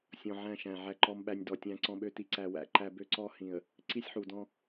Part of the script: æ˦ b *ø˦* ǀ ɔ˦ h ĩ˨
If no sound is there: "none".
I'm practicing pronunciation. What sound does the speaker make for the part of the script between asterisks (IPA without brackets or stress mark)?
ø˦